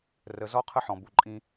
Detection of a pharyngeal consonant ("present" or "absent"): present